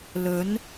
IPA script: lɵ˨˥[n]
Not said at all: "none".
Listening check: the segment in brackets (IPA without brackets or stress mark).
n